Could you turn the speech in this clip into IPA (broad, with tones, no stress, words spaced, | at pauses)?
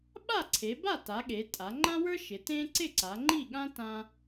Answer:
ɓa˥˨ǀʰe˩˧ba˥˨ta˩˧ ɠe˩˧tʼa˩˧ ŋ͡ǃã˥wə˞˥ʃɪ˩˧ tẽ˥ ǀɪ˥˨ǀa˩˧ŋ͡ǃi˥˨ɠã˥ tã˥